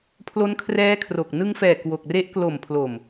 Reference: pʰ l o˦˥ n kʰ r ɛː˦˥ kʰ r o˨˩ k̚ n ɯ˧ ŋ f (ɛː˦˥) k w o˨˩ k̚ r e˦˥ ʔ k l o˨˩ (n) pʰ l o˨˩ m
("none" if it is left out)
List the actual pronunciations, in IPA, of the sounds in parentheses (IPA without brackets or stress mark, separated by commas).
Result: ɛː˨˩, m